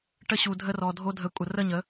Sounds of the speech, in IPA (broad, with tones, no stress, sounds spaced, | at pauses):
ʈ ə˧ ɕ u˨ dʱ ə˧ r ɔ˨ dʱ o˧ dʱ ə˨˦ kʷʼ ə˨ r ə˦˨ ɲ ə˨˦